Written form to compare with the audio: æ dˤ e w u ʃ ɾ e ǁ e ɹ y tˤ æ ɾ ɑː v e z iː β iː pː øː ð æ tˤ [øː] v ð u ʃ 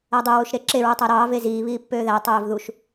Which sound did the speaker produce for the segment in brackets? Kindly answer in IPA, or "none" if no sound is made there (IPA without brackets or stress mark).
øː